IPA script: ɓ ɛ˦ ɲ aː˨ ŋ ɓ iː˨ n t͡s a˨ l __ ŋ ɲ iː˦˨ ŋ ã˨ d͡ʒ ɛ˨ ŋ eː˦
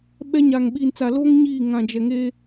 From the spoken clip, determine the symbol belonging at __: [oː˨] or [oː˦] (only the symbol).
oː˦